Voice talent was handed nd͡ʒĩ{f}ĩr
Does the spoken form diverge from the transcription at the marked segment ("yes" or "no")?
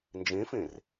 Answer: no